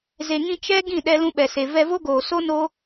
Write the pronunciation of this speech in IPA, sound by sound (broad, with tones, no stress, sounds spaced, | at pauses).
z e˨ ŋ ĩ˧ t͡ʃ ɛ˦ ɡ ĩ˦˨ ɗ ɛ˧ l ũ˧ ɓ ɛ˨ s e˨ v ɛ˧ v o˦ ɡ oː˨ s o˦ n oː˦